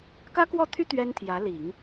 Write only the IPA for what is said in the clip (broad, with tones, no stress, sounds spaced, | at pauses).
k ä˥ k w ɔ˥˩ t̪ʰ y˥ t̪ ɥ ɛ˥ n t̪ʰ j ä˧˥ l i˨˩˦ ŋ